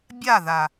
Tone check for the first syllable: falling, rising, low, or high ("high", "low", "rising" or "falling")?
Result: falling